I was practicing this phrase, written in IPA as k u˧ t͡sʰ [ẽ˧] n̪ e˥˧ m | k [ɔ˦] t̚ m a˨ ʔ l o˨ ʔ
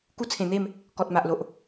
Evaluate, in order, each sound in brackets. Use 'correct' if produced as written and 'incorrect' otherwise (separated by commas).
incorrect, incorrect